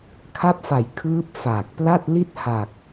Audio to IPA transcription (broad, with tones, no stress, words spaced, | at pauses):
kʰa˦˥p̚fa˨˩j kʰɯː˦˥p̚ faː˨˩k̚ pla˥˩t̚ li˥˩t̚ ha˨˩k̚